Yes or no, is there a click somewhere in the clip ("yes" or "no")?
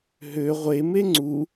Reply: yes